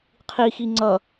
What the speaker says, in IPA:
qʰixi ŋ͡ǀʌ

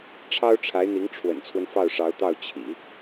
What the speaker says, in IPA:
ʈ͡ʂʰɑ˥ʊ̯ʈ͡ʂʰa˧˥ɪ̯n̪i˧˥ŋ ʈ͡ʂʰwə̰˨˩nt͡sʰwə˦n fɑ˥˩ʊ̯ʂɑ˧˥ʊ̯t̪ɑ˥˩ʊ̯ t͡ɕʰḭ˨˩˦

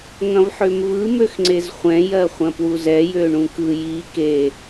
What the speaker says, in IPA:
ŋɐ̃vħømvɯ møxŋ͡ǀezχʷɛ̃ jɜχʷɐ̃pwuzɛ jøɳũkɯ ji ke

